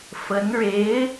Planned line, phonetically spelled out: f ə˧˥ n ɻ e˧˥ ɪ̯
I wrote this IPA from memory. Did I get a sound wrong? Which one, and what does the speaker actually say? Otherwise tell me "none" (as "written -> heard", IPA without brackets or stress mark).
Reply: none